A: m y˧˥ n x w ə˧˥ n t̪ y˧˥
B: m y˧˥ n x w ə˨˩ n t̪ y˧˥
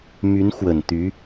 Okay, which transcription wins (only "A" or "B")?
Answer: B